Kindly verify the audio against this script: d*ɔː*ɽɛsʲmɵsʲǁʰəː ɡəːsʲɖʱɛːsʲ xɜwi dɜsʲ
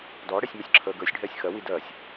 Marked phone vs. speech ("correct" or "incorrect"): correct